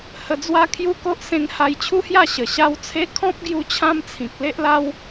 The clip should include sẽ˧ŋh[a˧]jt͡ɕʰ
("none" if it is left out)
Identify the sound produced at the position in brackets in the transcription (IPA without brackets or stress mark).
a˧